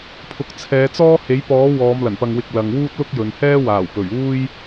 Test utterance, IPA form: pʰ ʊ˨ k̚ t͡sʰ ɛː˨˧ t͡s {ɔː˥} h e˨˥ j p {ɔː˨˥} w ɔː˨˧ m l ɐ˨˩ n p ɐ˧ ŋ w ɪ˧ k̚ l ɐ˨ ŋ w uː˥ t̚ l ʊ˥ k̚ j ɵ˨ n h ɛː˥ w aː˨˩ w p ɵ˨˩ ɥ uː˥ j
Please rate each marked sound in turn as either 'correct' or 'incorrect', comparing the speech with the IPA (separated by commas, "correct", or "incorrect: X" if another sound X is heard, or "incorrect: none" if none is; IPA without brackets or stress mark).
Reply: correct, correct